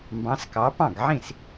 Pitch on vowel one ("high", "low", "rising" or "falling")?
rising